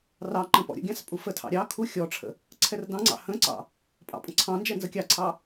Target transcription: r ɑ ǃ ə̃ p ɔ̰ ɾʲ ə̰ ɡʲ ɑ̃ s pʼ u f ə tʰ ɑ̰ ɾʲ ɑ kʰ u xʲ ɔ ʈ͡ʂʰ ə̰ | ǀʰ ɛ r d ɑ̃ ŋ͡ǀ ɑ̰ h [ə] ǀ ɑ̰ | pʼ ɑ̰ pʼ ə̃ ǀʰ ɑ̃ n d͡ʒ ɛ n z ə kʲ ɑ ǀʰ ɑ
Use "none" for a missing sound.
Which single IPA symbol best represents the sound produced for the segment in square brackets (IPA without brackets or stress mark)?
ə̃